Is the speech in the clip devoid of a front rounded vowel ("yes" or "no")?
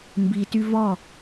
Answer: no